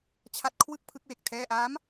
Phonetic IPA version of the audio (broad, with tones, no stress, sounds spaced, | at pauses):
t͡ɕʰ a˦˥ t̚ kʰ w ɯ˥˩ k̚ pʰ ɯ˦˥ k̚ w e˨˩ k̚ tʰ ɛː˥˩ ʔ aː˦˥ m